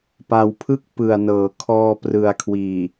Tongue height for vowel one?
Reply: low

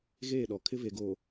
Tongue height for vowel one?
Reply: mid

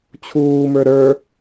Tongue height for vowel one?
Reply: high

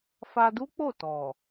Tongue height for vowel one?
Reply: low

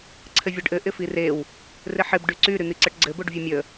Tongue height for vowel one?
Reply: mid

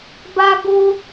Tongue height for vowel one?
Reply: low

